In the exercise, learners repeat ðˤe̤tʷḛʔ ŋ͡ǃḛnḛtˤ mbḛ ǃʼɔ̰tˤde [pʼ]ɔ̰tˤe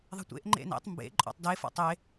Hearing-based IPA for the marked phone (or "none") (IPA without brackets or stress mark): f